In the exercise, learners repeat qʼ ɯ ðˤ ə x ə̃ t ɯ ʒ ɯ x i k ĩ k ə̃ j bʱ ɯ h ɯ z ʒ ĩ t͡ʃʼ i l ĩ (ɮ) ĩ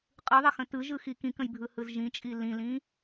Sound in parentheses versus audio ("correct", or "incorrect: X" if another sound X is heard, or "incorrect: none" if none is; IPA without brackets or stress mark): incorrect: l